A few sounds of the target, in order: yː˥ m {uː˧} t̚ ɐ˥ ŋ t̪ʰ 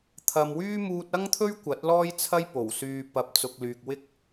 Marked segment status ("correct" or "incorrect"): correct